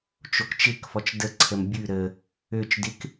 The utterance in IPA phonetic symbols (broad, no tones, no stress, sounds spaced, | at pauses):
t͡ʃ o k t͡ʃ ɪ k f ɔ t͡ʃ d ə ǀʰ ə m bʲ ʉ ɾ ə | ø t͡ʃ d ɪ k